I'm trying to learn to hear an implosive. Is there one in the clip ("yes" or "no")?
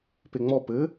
no